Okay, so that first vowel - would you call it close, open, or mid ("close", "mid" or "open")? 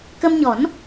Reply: mid